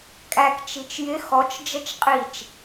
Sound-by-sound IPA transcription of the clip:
kʼ æ k t͡ʃ i t͡ʃ j ɪ x ɔ t͡ʃ d͡ʒ ə t͡ʃ qʼ i t͡ʃ

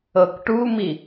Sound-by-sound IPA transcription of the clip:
ɤ k ʈ u m i

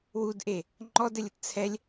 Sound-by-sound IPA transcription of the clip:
w u d ʔ e | ŋ͡ǃ ɔ d ɘ lʲ ə t t͡sʰ ɛ lʲ

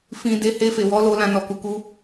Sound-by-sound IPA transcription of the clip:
f ĩ˨ d e˨˦ h e˧ f e˨ w ɔ˨˦ l o˧ l ã˧ n ɔ˨ k u˨ k u˧

